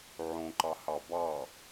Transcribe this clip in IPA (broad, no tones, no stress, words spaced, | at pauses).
ʕõǃɑhɑ bɑ